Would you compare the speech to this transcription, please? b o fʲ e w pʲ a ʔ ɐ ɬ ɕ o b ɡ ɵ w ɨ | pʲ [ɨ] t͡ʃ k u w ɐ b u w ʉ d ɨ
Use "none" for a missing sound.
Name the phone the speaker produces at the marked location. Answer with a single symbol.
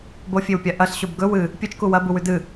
ɨ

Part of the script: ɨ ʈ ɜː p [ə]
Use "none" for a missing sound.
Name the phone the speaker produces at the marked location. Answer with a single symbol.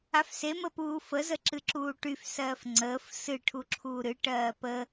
ə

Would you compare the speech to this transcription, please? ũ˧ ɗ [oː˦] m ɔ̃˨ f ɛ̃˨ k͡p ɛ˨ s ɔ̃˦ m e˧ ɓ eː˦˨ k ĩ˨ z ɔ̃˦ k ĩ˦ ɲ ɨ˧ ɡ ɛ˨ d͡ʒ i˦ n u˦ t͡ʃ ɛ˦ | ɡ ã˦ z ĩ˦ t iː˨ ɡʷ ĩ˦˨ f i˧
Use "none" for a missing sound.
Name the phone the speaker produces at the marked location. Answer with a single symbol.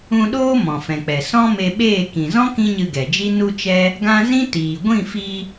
oː˦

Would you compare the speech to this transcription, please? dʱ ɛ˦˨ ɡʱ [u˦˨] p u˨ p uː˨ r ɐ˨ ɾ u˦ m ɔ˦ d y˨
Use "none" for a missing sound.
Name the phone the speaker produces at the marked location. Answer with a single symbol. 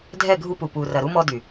u˦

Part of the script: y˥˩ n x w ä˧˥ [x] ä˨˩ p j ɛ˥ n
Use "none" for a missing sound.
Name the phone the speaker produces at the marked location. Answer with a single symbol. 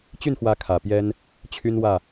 kʰ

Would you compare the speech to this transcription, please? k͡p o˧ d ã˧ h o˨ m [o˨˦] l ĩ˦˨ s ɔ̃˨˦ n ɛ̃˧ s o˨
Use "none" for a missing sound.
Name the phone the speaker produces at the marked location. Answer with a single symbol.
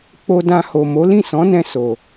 o˨˦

